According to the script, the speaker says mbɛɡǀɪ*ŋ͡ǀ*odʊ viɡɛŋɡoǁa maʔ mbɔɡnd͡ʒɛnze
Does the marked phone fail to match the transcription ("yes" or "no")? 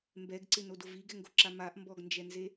yes